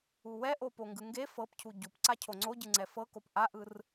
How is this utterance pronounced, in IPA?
uwɛʔo poŋɡɯŋɡe fɤpcʰu ɟupǀa cʰoŋ͡ǀoɟɯŋ͡ǀɛ fɤkop ʔaʔɯr

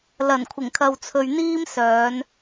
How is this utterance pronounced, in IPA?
lɐ˨˩nkʷʰɪ˨˩ŋkʰɐ˨w t͡sʰɵ˧ɥn̪iː˥msœː˨˧n

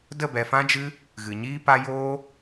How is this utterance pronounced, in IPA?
də˦˨bɛ˨ fã˦d͡ʒɨ˦ | ɣɨ˨ɲiː˦pa˦ joː˦

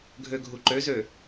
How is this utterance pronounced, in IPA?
ɡʱøɡʱuǃøzø

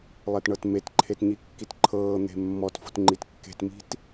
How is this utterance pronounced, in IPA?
lˠetɳɤtmetǃʰet ɲikːitǃʰɤːn̪e̤ mːɔtfo̤t ŋ͡ǃitkːe̤tmi̤t

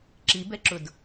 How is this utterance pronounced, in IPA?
ǁibɛǁʊd

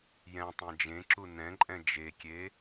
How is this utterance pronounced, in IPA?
jɛ̃tˤẽ d͡ʒẽǁu nɛ̃ǃʼɛ̃ d͡ʒekʲe

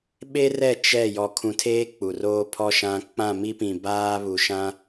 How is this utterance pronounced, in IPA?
ɓe˦rɛ˦˨ t͡ʃɛ˦˨ jɔ˨kʰũ˨tʰeː˦ k͡pu˨roː˦ pʰɔ˦ ʃã˦ k͡pã˦˨mi˦pĩ˨ baː˦βu˨ʃã˦

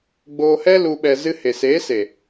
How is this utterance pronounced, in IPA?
ɡ͡boː˧hɛ˦ lu˧ ɓɛ˧zɨ˦ he˨seː˨˦se˨

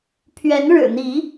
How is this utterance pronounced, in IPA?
pʰɥɛ˨˦n ɻɻ̩˨˩n̪i˨˦

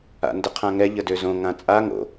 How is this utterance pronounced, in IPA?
a̰ndəqʰãŋɛ ʎədøzõ ŋãt͡sʼa ŋo̰

